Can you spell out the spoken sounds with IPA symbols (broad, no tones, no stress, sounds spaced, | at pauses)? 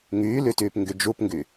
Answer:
ŋ yː l y t yː p ŋ ɡ y d͡ʒ u p ŋ ɡ y